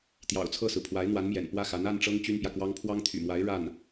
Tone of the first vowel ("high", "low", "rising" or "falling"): low